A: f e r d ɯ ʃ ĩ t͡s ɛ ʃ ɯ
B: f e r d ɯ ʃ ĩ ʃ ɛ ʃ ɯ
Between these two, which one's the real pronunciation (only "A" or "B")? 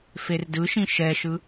B